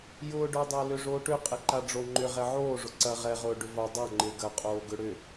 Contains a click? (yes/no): yes